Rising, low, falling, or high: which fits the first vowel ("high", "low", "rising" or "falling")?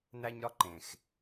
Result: high